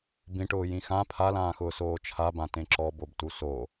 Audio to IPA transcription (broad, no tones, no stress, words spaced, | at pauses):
bĩʈʊː jĩxã pʰalãːxʊː soːt͡ʃʰabã tẽǁɔ bobtuso